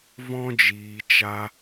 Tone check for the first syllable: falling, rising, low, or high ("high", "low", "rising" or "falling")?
high